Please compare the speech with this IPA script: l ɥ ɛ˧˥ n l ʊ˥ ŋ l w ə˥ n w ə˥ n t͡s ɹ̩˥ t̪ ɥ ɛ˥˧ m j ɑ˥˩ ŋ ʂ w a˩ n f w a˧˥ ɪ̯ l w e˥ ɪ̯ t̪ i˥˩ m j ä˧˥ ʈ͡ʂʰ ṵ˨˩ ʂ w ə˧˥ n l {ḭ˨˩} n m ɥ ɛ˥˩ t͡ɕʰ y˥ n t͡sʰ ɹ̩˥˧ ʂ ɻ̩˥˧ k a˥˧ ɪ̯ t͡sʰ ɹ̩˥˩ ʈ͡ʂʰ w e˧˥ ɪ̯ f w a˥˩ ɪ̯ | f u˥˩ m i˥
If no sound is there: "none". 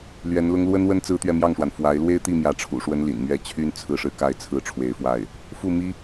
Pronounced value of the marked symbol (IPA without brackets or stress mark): ḭ˨˩